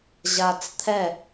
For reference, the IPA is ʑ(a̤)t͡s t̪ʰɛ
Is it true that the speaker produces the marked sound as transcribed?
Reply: no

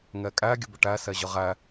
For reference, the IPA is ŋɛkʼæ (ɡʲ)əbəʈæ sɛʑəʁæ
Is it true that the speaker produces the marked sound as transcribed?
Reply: yes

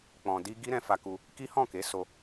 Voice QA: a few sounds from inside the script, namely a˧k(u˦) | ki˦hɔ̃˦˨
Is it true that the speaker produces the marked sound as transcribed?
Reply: no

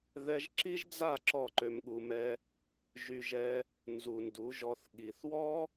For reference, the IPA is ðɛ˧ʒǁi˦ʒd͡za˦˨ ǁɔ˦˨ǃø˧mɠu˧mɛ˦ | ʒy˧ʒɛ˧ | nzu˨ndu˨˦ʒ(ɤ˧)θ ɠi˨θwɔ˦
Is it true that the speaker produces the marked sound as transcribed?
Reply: no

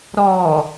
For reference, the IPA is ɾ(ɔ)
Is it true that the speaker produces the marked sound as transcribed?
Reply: no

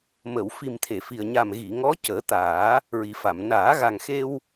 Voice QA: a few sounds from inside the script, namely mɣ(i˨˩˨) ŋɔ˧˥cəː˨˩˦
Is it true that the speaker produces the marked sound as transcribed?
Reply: yes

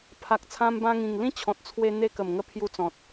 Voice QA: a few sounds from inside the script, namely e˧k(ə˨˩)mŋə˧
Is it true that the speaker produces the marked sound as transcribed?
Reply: yes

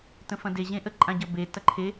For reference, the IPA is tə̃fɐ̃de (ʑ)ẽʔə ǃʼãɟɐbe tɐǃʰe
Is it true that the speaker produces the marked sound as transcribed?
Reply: yes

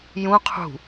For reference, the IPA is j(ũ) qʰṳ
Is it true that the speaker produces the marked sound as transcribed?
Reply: yes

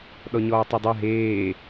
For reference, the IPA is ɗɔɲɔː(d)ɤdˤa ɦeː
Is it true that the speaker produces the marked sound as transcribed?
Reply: no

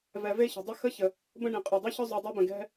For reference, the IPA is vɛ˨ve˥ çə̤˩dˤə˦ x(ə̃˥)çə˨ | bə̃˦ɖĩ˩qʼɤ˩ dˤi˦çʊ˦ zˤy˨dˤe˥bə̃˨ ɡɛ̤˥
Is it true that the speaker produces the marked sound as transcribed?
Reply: no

